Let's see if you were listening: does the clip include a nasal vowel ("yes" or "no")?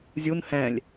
yes